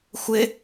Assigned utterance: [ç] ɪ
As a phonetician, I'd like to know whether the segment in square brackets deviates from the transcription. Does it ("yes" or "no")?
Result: yes